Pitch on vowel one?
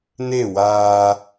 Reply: falling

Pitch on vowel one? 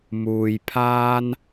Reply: low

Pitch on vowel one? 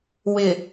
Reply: low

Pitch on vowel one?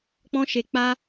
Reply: high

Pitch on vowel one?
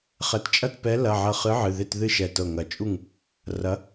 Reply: rising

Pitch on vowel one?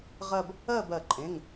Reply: falling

